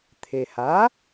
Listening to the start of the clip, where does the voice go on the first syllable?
low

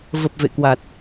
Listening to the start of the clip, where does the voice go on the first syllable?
low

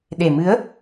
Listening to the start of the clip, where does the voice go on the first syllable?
low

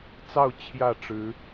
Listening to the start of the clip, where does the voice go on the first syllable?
falling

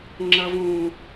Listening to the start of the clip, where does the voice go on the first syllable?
high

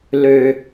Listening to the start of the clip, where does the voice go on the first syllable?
low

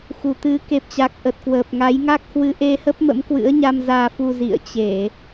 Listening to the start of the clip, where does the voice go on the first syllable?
low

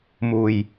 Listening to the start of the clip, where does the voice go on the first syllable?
low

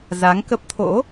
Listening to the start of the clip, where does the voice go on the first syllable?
rising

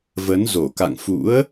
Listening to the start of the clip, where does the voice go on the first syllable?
rising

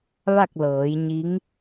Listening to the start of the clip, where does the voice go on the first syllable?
falling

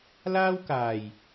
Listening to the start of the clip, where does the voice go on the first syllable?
high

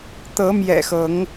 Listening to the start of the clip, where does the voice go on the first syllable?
rising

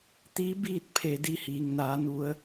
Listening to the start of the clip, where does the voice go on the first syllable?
rising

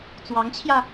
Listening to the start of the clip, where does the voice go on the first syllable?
rising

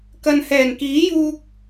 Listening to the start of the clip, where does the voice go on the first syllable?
low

